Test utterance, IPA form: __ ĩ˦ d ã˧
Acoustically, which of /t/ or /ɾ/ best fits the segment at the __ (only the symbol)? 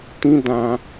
t